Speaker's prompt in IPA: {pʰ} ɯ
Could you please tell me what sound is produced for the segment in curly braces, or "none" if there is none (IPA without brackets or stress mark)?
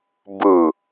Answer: b